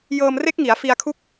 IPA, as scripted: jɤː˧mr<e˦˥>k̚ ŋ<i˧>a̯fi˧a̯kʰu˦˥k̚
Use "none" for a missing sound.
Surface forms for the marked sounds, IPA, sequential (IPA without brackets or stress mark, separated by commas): e˦˥, i˩˦